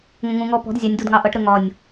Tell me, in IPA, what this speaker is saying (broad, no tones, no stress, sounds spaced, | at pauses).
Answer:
ŋ ə̃ ŋ ũ ŋ ɔ p ɔ̤ d zʲ ɑ nʲ d u d ŋ ɑ ʔ ʌ ʈ ɾ ə ŋ ɒ nʲ